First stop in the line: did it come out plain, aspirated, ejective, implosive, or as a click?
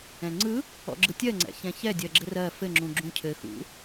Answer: click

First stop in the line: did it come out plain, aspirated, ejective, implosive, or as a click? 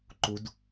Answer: click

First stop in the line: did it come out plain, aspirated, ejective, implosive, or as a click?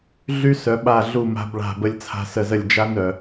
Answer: implosive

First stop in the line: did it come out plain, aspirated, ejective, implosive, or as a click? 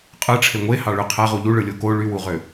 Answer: ejective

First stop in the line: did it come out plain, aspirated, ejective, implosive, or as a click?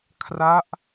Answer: aspirated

